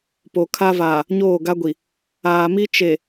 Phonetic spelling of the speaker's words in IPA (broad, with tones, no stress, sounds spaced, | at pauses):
p o˨ kʰ a˦ v aː˨ | ɲ oː˦˨ ɡ a˦ ɡʷ i˨ | aː˨ m i˦ t͡ʃ e˨